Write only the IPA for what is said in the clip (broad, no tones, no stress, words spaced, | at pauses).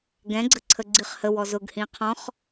ɡɛ̃ɡ͡ǀə ǀʰəɡ͡ǀiχhəwɔ zʊɡhĩ qʰɔ̃χ